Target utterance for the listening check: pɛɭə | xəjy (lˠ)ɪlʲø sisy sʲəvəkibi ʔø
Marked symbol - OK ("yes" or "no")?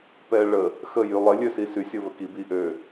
yes